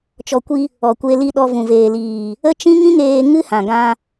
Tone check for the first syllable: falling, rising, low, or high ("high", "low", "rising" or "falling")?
low